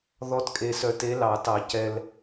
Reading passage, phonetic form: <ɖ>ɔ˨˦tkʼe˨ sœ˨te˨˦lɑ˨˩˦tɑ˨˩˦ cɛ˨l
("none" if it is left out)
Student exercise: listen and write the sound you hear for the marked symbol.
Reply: ð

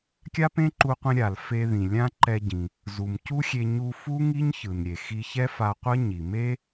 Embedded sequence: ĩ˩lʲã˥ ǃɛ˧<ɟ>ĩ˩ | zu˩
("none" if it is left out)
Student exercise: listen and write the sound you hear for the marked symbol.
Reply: ɟ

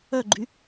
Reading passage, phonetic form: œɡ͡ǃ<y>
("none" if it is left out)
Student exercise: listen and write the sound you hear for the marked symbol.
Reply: y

